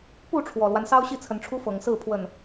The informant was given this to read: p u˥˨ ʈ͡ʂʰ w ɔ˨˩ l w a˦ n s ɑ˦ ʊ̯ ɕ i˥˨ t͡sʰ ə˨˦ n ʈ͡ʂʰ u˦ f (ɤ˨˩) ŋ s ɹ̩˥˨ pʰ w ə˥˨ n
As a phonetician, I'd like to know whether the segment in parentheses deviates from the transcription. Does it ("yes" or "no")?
no